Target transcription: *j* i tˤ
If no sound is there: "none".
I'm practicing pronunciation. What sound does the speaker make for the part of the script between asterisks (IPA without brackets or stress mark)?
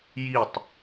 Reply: j